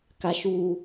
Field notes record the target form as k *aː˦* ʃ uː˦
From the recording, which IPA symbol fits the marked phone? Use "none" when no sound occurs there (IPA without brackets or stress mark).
a˦